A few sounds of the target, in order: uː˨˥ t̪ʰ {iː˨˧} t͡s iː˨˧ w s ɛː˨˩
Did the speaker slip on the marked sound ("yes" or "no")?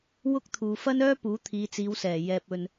no